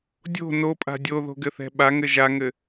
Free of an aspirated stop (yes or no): yes